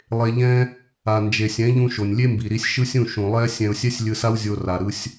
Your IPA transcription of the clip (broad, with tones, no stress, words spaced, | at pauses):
lˠe˧ʎɛ̃˦ | a˨nd͡ʒe˨sʲɛ̃˨˦ʎũ˧ ʃo˨nʲlʲe˦mbi˨ɾi˧sʲ ʃɯ˦sʲũ˦˨ʃũ˨ lˠɛ˦ sʲɛ̃˧ʊ̯sʲɛ˦sʲ lʲɯ˧sa˦wzʲo˧ ra˨ɾɯ˧sʲ